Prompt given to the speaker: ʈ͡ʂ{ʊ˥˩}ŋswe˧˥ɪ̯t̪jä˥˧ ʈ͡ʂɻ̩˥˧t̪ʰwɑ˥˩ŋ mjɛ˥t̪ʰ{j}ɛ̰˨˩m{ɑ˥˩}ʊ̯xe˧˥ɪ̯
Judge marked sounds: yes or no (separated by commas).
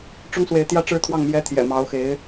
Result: no, yes, no